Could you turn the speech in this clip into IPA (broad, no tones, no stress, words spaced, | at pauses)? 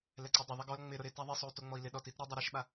lɛǀodˤɪ ðˤɛɡɔl ŋ͡mɪɾʊ ɾɪ taðˤisˤou̯ toŋ͡mɔi̯lɪ ɗɔtit ɾɪ dˤaɾiʃɓa